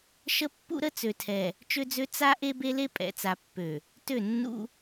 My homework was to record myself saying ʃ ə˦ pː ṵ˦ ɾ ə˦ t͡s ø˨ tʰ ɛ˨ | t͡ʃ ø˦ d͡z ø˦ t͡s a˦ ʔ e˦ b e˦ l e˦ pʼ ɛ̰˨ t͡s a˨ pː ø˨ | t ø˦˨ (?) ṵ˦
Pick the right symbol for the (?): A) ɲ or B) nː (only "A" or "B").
B